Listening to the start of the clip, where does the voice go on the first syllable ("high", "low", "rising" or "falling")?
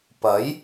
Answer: rising